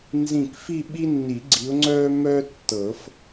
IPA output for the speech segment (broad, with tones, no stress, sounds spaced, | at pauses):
n z ĩ˧˩ k f i˥˧ ɓ i˥ nː i˨˩˦ ɡ͡ǀ i˨˦ ʊ̯ ŋ͡ǀ œː˥ m œ˥ tː ɤ˨˩˦ f